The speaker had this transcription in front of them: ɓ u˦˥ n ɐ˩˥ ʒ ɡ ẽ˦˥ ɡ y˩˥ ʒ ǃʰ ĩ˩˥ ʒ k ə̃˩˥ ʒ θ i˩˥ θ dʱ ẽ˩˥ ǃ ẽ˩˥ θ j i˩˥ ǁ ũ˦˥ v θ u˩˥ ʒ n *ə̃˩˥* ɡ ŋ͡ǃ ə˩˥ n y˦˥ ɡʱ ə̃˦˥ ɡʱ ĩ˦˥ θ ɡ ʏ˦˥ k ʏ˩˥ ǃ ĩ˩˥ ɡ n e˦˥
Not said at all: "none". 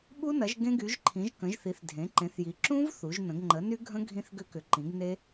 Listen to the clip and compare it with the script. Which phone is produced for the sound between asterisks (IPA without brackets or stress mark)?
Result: ə̃˩˥